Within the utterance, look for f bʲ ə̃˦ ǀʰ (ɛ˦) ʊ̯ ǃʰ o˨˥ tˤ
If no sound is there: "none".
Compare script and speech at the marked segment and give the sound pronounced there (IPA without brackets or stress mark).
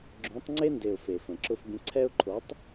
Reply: ɛ˦